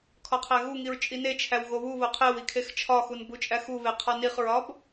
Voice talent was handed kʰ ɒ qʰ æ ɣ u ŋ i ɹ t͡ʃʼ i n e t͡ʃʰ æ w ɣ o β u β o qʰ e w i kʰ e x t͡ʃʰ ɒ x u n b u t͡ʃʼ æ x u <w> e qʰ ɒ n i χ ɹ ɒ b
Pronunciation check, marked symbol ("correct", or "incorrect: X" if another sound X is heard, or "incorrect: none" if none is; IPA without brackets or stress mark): incorrect: β